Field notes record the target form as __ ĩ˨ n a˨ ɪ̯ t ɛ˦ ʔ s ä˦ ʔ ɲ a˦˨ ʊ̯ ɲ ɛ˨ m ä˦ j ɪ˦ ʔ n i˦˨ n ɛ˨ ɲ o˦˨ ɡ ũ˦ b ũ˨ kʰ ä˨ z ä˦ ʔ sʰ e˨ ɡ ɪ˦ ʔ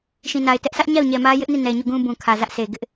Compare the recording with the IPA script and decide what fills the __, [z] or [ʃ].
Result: ʃ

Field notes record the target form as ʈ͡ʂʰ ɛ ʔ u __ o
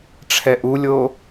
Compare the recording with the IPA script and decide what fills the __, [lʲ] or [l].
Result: lʲ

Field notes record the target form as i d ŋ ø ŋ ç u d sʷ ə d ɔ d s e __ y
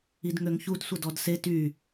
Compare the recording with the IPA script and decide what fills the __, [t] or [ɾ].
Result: t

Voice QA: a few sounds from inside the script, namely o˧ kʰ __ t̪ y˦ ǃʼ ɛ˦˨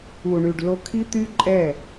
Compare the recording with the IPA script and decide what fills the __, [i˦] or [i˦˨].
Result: i˦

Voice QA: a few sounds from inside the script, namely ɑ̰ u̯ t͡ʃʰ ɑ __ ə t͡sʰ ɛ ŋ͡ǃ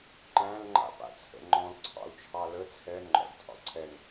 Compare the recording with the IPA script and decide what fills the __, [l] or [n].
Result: l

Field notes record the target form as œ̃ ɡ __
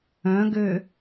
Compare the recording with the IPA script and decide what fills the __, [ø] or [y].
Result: ø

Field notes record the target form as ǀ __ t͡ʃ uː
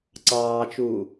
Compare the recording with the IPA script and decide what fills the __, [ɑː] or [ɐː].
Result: ɑː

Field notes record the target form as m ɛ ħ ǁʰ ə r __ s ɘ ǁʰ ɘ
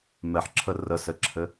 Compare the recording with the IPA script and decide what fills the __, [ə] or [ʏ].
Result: ə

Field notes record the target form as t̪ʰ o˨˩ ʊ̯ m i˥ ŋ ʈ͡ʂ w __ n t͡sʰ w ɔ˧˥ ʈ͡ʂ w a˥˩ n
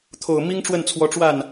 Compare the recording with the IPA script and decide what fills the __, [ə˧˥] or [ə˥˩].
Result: ə˥˩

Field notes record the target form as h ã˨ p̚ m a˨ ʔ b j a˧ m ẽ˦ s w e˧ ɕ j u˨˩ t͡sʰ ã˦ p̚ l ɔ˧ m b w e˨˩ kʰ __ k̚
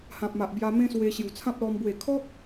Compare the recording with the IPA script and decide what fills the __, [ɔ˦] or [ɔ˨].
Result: ɔ˦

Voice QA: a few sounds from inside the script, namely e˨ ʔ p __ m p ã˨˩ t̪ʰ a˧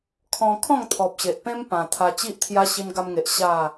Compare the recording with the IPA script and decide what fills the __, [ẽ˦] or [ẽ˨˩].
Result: ẽ˦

